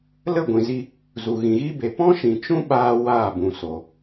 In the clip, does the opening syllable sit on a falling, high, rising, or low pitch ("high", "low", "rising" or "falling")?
falling